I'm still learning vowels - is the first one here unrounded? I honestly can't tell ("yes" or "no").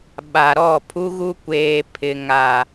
yes